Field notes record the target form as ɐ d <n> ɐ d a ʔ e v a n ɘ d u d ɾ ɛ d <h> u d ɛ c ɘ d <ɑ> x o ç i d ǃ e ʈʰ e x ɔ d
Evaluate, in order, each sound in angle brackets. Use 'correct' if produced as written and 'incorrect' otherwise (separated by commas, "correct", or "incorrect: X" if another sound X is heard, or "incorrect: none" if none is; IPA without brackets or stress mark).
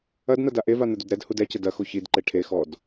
correct, correct, incorrect: ɐ